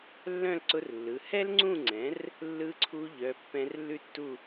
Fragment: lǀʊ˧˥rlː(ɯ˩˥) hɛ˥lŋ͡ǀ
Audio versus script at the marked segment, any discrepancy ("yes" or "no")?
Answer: yes